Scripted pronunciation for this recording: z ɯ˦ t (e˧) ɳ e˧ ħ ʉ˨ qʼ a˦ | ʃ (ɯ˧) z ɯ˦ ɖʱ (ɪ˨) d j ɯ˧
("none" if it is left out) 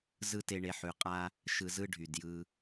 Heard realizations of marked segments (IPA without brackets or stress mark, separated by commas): e˧, ɯ˧, y˨